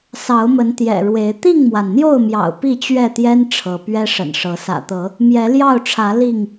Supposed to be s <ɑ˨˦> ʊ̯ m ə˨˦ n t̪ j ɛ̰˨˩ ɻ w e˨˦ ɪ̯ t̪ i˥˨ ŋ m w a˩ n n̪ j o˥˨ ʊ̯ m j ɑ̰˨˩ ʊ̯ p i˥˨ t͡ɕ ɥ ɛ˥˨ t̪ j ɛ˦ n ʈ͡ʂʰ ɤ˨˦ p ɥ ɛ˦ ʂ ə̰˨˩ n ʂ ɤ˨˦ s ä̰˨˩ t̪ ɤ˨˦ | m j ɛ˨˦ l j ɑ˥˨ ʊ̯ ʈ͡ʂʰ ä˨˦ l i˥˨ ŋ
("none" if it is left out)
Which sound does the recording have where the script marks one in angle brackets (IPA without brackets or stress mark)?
ɑ˨˦